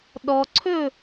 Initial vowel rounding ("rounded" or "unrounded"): rounded